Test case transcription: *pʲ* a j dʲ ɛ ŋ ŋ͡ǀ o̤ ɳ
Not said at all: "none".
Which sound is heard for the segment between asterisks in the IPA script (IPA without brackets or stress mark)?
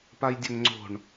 p